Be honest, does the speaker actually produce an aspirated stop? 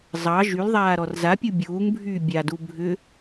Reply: no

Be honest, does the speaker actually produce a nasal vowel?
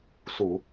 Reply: no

